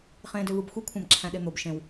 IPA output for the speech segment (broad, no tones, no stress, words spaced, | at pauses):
χẽːdøvɯbxʷi kʷʰæ̃bǁʰæ̃ɗen̪ob ʃẽw